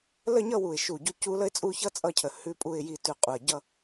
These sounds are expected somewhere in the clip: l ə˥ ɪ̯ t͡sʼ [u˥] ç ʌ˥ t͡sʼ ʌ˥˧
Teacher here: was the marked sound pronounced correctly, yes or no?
no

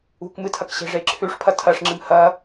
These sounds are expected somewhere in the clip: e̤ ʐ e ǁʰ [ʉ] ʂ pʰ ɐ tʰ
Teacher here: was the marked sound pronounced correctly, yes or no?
yes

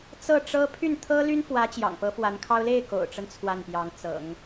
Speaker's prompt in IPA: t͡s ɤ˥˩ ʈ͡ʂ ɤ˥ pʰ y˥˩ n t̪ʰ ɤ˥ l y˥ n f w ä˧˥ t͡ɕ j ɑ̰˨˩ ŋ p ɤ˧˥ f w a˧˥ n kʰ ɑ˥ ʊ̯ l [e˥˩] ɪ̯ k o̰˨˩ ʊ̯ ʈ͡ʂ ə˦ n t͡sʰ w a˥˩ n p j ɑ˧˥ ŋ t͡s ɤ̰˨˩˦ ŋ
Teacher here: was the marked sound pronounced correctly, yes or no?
yes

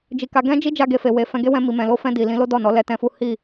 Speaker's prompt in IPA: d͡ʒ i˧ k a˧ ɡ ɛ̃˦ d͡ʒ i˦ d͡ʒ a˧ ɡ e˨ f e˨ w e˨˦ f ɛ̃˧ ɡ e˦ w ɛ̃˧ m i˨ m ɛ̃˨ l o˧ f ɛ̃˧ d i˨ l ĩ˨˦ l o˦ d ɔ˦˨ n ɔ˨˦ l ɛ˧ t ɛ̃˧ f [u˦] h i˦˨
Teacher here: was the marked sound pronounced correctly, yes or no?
yes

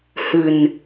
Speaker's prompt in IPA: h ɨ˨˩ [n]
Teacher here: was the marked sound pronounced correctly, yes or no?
yes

